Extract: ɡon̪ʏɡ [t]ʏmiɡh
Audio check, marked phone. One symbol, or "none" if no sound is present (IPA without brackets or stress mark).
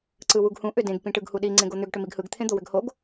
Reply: ʈ